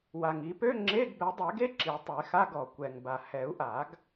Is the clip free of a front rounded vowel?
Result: no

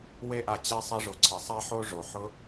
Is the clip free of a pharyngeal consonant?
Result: no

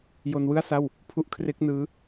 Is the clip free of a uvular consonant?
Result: yes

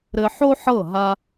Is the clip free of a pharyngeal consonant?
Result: no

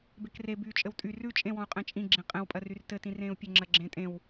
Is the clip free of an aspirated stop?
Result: yes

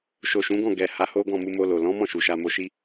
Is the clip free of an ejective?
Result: yes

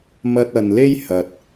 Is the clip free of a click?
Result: yes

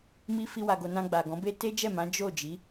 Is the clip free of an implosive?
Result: yes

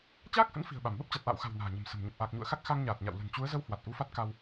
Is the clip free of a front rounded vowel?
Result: yes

